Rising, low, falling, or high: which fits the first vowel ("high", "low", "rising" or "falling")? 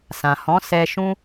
low